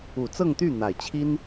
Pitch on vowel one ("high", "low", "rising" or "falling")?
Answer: low